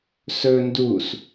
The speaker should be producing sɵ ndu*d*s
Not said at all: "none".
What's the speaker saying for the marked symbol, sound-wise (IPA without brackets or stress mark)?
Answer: none